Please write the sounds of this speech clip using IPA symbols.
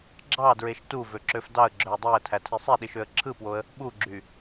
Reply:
ɡ͡ǁ ɑ d ɹ e ʃ t u v ø ǁ ø f d ɑ ə̯ ɡ͡ǁ ø ə̯ dˤ æ ə̯ tʰ æ tʰ i sˤ e ɗ i ʃ ø ə̯ ǁʰ ɯ p w o ə̯ | ɓ u ɡ͡ǁ y

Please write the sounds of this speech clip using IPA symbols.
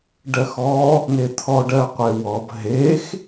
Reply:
ɖ ɜ x ɔ | n e t̪ʰ ɔ ɖ ɜ qʷ e w ɔ b ɦ e x

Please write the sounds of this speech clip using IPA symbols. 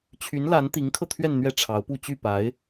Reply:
t͡ɕʰ y˧˥ n l a˧˥ n t̪ i˧˥ ŋ kʰ ɤ˧ t̪ʰ ɥ ɛ˥˧ n n̪ ɥ ɛ˥˩ ʈ͡ʂʰ ɑ˧˥ ʊ̯ p u˥˧ t͡ɕ y˥˩ p a˧˥ ɪ̯

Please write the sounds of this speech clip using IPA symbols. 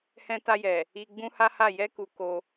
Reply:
h ɛ̃˧ t a˧ j ɛ˨ | i˧ ɡ͡b ũ˦ h a˦ h a˦˨ j ɛ˧ k u˧ k o˧

